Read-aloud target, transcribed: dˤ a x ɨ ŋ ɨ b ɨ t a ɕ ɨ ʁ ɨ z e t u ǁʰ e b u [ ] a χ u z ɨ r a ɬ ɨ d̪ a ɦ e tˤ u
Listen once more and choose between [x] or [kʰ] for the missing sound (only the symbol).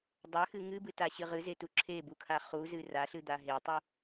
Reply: kʰ